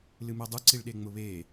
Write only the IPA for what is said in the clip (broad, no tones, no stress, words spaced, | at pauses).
lɨmedˤuǀiɭ ɗeŋ͡mʊβe